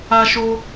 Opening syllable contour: high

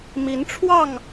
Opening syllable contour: rising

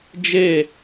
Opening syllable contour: falling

